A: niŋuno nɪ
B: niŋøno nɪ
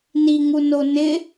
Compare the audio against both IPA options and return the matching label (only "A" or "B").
A